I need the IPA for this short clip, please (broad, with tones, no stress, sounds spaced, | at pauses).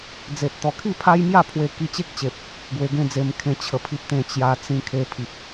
d͡z e˨ t̚ t̪ ɔ˨˩ kʰ i˥˧ pʰ a˦ j m j a˥˧ pʰ w e˧ k i˧ t͡ɕ e˦ k̚ t͡ɕ e˨ p̚ | ɡ w e˧ ɡ ẽ˥˧ d͡z e˧ m kʰ ẽ˧ t͡ɕʰ ə˨˩ pʰ i˨ p̚ t̪ ẽ˨˩ t͡ɕ j a˧ t͡s ĩ˧ kʰ e˧ pʰ i˨ p̚